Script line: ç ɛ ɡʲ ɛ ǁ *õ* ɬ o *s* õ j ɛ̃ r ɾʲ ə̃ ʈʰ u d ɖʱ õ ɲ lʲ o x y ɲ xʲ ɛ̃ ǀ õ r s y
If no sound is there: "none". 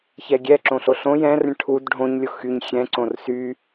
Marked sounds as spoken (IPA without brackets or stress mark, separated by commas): õ, ɬ